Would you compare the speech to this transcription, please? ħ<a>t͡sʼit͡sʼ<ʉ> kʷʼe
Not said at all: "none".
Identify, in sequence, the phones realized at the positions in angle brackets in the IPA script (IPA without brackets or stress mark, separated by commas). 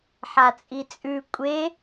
a, ʉ